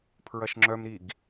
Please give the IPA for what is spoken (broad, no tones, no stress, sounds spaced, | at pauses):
pʰ ɹ ɐ ʃ ŋ͡ǁ œ m ɾ i ɡ